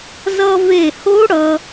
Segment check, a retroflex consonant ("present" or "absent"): present